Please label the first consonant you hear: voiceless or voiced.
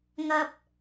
voiced